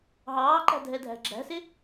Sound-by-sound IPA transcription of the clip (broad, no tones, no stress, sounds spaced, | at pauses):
ɦ ɑː ǃ æ̤ dʱ ɛ dʱ æ̤ ɡ͡ǁ æ̤ s ɪ